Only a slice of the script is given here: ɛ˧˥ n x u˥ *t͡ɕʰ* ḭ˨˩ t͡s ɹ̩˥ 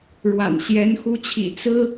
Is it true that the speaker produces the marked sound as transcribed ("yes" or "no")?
yes